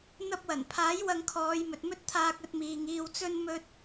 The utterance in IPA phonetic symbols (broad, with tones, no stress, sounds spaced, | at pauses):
n̪ ɐ˧ p̚ w ɐ˨˩ n pʰ aː˨˥ j w ɐ˧ ŋ kʰ ɔː˨˧ j m ɵ˨ t̚ m ɵ˥ t̚ t̪ʰ aː˧ k̚ ɵ˧ t̚ m iː˨ ŋ iː˧ w t͡s ɵ˥ n m ɵ˥ t̚